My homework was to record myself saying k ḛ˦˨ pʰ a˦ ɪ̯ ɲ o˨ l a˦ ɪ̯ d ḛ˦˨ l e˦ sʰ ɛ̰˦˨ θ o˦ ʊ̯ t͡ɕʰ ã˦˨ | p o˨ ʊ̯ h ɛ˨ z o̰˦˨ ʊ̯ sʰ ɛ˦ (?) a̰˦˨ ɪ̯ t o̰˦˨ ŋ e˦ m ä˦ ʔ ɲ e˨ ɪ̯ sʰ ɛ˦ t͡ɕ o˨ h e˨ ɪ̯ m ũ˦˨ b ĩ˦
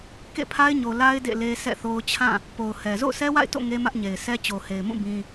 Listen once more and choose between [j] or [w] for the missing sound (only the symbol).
w